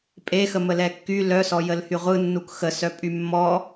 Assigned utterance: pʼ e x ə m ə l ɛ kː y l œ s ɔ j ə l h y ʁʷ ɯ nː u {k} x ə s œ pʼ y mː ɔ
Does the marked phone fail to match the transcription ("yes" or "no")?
no